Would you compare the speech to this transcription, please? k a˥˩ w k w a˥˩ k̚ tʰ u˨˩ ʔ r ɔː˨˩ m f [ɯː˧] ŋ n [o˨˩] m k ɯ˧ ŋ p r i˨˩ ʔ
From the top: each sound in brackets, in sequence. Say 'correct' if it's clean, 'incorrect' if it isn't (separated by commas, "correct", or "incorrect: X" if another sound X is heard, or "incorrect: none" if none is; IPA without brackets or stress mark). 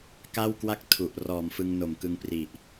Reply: incorrect: ɯ˧, correct